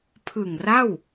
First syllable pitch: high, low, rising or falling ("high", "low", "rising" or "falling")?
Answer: low